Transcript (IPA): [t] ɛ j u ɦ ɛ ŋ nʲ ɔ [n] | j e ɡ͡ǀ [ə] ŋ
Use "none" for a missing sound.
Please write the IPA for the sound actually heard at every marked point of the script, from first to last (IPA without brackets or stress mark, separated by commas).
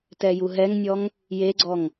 t, ŋ, ɔ